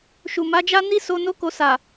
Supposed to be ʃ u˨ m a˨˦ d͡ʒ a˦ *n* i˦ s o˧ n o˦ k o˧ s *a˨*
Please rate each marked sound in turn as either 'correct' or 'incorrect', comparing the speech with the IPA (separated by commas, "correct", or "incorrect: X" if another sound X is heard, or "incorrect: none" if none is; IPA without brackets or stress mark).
correct, correct